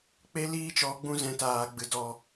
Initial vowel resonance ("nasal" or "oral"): oral